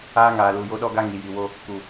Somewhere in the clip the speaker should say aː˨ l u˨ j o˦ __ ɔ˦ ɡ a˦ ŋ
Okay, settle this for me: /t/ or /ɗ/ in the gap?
ɗ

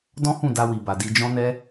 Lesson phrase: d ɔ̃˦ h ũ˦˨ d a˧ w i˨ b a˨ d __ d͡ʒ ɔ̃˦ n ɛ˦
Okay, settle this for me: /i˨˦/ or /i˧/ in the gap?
i˧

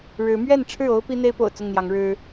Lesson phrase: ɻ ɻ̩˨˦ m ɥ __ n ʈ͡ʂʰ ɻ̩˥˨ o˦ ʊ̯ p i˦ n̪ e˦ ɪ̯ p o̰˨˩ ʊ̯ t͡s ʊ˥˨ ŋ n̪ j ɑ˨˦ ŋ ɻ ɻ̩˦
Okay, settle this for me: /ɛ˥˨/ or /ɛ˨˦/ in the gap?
ɛ˥˨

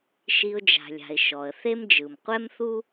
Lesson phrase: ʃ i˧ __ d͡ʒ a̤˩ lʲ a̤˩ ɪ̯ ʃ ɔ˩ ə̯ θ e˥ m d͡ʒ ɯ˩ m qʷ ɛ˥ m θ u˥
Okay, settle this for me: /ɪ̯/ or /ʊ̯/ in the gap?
ʊ̯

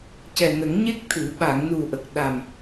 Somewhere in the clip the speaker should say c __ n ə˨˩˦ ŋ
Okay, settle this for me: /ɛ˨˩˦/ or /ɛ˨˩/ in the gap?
ɛ˨˩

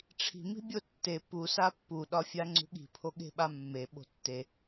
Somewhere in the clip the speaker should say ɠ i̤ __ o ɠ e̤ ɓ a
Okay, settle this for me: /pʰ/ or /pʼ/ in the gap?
pʰ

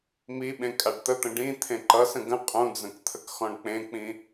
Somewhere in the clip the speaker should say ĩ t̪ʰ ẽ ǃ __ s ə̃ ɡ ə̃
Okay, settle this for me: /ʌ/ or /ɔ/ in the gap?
ʌ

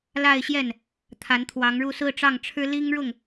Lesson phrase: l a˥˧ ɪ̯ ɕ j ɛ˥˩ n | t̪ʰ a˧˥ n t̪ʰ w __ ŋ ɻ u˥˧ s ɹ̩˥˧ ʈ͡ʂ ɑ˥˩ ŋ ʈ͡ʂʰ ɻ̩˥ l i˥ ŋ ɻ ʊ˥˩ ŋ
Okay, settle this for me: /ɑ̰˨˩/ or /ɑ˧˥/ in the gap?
ɑ˧˥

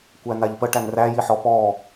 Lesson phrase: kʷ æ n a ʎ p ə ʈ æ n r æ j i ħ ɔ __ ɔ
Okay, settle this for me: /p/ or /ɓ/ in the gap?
p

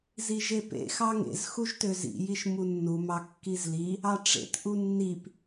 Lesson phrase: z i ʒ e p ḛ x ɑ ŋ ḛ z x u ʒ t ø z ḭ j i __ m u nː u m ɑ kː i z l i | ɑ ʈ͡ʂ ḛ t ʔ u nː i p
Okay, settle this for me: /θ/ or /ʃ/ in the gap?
ʃ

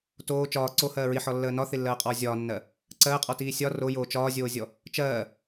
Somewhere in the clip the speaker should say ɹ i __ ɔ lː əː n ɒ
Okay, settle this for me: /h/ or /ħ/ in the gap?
ħ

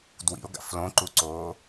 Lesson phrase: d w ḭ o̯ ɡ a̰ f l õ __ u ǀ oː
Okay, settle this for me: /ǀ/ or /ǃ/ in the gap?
ǃ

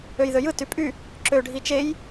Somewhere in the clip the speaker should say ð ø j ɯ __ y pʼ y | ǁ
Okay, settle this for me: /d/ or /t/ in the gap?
t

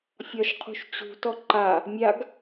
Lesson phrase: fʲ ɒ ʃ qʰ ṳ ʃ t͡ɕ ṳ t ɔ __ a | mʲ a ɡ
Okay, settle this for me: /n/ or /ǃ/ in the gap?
ǃ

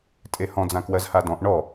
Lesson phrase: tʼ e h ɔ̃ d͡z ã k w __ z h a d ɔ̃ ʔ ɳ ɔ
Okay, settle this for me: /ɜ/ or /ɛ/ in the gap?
ɜ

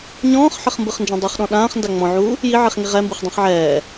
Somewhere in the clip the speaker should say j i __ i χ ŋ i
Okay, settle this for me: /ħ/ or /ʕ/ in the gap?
ʕ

